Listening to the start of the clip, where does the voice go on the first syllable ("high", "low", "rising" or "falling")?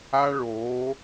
high